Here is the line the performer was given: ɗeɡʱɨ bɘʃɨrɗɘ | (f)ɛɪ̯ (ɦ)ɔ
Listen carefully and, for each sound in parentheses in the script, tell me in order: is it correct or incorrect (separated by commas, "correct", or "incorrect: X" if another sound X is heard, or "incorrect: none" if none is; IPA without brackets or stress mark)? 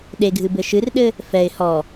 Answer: correct, incorrect: h